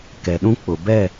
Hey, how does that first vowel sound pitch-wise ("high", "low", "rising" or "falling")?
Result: low